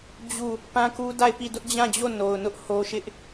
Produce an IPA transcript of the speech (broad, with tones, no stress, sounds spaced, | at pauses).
d͡ʑ u˦˨ | p ã˦ k u˦ d a˦˨ ɪ̯ p i˦˨ d ʊ˦ ʔ d͡ʑ ã˦˨ d͡ʑ o˦˨ n o˨ ʊ̯ n ʊ˦ ʔ h o˦ ʃ ɪ˦ ʔ